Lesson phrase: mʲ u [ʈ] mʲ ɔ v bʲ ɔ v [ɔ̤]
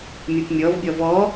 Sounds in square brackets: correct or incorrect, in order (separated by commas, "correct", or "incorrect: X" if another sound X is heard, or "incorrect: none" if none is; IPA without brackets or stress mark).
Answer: incorrect: p, incorrect: ɔ